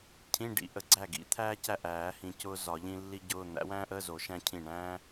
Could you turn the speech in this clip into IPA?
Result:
cʰ ĩ˧˥˧ ɖ ḭ˨˩˦ ʔ ə˨˩˦ ɡ͡ǀ æ˥˩ ɡ ḭ˨˩˦ t̪ʰ æː˥ c æ˥˩ ʔ æː˨˩˦ h ĩ˨ c ʊː˥ z ɒ˨˩˦ ʎ ĩ˥ lː i˥ ɟ ʊː˧˥˧ n̪ æ̰˨˥ w æ̃ː˥ ʔ əː˧˥˧ z o˨˩˦ ʃ æ̃˥ cʰ ĩ˥˩ ɳ æ̃ː˥

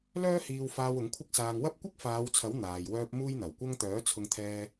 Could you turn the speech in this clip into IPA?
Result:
l œː˥ h iː˧ w f aː˧ w ʊ˨˥ ŋ kʷʰ ɪ˥ k̚ s aː˧ ŋ w ɐ˥ p̚ kʷ ɪ˥ k̚ f aː˨˧ w t͡sʰ ɐ˨˥ w n̪ aː˨ j w œː˥ p̚ m uː˥ j n̪ ɐ˨˩ w kʷ ɐ˥ ŋ t̪ œː˨˥ t͡sʰ ʊ˧ ŋ t̪ʰ ɛː˧

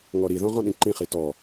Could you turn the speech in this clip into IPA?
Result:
ŋ ɔ ɾ i ð ɔ̃ ʁ ɔ̃ ɗ ĩ ǃ ĩ χ i t ɔ

